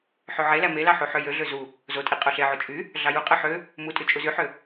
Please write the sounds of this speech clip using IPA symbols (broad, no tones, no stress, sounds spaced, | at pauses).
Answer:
ħ ø ʕ e l æ m e l ɑ ħ u ħ ø j ø ɮ ø z u | z o tʼ i qʼ o ɬ e ʕ o t͡ʃʼ y | ɮ ɑ j u qʼ ɯ ħ ø | m u tʼ y t͡ʃʼ u z y ħ ø